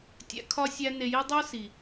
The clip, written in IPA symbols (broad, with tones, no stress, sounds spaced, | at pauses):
tʲ æ̰˧ kʰ ɒ˦ sʲ æ˦ n e˧ j i˦ dˤ o˦ s i˨